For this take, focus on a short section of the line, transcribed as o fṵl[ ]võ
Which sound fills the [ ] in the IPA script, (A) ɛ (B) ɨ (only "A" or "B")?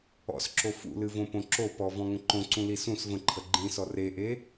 B